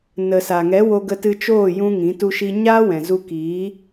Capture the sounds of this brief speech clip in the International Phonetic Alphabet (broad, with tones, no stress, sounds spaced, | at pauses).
n ə˨ s a˨ ŋ ɛ˨˦ w o˧ ɡ ə˧ t ɨ˧ t͡ʃ oː˦˨ j ũ˦ ŋ ĩ˨˦ t u˦ ʃ i˦ ɲ aː˦ w ɛ̃˨ z u˧ k iː˨˦